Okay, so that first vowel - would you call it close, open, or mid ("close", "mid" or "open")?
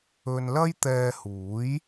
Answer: mid